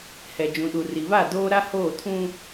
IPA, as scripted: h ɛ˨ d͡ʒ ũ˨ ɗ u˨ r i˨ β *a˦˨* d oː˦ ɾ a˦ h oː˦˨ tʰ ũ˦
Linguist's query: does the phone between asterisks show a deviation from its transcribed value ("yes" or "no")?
no